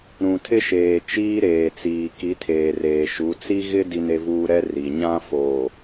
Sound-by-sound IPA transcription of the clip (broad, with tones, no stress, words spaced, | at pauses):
ɾũ˨tʰɪ˦ʃeː˨ t͡ʃiː˦ɾeː˨t͡siː˨ ki˨˦tʰeː˨reː˨ʃu˨˦ t͡si˦ɣɪ˦ di˦ne˦vuː˦ ɾɛ˦ ri˨ɲã˦foː˨